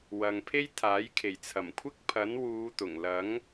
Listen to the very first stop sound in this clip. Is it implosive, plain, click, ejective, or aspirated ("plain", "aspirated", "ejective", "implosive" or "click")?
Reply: aspirated